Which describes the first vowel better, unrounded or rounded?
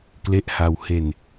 unrounded